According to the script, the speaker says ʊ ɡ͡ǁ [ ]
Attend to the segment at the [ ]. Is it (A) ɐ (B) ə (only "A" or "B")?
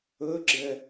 B